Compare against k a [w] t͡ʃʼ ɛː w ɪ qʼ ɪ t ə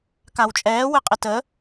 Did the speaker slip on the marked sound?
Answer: no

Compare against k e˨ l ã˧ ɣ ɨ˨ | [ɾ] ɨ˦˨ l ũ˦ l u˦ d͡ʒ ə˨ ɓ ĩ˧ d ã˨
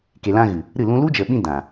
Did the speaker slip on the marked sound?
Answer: no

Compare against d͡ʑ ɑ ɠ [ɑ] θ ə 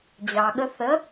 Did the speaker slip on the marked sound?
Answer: yes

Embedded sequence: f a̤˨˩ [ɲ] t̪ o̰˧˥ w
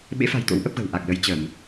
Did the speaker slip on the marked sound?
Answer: yes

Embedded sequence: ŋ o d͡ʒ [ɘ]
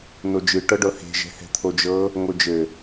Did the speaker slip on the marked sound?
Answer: no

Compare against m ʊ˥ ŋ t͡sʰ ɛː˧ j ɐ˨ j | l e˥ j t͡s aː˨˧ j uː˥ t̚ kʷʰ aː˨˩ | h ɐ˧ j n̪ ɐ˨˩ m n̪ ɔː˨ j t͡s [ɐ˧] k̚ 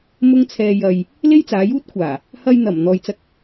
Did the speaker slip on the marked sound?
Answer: no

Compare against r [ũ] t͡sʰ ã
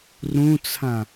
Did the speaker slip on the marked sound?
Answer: no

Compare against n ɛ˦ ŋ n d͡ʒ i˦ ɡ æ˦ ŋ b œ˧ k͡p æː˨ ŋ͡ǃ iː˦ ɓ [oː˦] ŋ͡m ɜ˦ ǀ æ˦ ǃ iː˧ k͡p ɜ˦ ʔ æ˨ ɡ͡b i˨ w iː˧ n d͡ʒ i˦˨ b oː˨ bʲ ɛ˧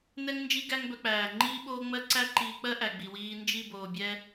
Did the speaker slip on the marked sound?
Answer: no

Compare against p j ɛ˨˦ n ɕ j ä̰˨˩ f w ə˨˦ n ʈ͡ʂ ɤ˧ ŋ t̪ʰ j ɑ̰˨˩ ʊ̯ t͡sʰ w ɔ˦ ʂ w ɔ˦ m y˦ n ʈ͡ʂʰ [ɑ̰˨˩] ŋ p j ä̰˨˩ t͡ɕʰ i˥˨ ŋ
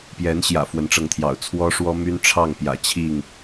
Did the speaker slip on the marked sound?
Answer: yes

